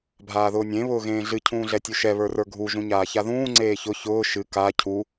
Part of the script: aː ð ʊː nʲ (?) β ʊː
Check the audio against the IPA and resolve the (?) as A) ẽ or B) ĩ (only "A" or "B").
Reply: A